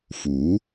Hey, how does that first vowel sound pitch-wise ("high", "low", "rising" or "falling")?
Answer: rising